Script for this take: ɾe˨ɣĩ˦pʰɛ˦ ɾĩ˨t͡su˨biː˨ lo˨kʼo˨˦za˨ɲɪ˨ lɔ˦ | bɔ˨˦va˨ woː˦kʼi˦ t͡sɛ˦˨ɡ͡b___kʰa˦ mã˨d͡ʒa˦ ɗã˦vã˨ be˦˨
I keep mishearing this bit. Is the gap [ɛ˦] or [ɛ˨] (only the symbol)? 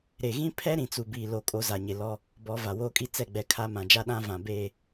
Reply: ɛ˨